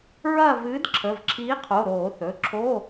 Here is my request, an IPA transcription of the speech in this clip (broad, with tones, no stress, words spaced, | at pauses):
ɹɐː˦˨ vɨː˨˥d ǁʰə˩˧˩vǁʰiː˨˥qʰo˩˧˩ ɾoː˧˩˧θɵ˩˧˩ǁʰo˧˥˧